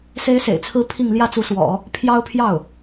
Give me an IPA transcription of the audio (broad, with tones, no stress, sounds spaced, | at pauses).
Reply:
s e˥ ɪ̯ s ḛ˨˩ ɪ̯ t͡sʰ ɹ̩˥ pʰ i˥˧ ŋ l j ä˥˩ t͡s u˧˥ s w ɔ̰˨˩˦ | pʰ j ɑ˥ ʊ̯ pʰ j ɑ˥˩ ʊ̯